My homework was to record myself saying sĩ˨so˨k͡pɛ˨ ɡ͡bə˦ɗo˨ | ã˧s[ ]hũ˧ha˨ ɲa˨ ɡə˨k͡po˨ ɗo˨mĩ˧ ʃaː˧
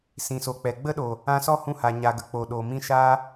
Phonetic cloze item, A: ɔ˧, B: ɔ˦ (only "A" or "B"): B